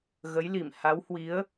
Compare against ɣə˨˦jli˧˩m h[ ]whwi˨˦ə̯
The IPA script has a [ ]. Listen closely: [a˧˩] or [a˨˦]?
a˨˦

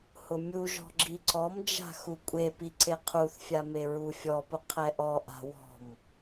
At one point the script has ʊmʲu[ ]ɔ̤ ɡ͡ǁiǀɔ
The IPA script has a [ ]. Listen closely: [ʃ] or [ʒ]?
ʒ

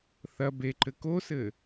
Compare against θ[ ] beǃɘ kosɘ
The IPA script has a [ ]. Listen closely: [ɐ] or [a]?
ɐ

